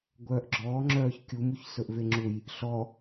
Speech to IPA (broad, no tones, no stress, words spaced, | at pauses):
ɡʷœːʔɡ͡ǁɔːŋ͡ǁœːç kʲumuçsɵʔve ŋ͡ǁuj | ɬɔ